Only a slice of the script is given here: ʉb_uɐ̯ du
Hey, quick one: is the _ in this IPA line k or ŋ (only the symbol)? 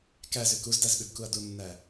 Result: k